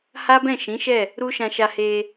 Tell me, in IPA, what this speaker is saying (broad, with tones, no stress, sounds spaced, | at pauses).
h a˦ b ɛ̃˦˨ ʃ ĩ˨˦ ʃ ɛ˦˨ | ɾ u˦ ʃ ã˧ ʃ a˧ h e˧